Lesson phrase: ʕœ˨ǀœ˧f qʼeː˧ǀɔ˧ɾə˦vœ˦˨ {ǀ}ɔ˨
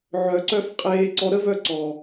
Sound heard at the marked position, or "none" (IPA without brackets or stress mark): ǀ